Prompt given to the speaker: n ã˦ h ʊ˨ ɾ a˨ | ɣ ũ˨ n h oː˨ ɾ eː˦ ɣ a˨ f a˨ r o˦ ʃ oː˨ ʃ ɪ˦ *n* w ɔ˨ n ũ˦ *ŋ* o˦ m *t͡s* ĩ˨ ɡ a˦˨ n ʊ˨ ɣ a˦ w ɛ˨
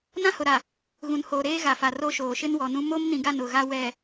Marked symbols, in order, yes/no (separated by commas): yes, no, no